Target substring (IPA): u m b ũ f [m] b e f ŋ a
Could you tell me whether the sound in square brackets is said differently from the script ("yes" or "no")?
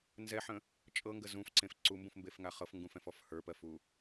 no